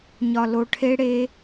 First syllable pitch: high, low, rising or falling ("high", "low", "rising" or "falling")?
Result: low